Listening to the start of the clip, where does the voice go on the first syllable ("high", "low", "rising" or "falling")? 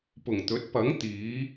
low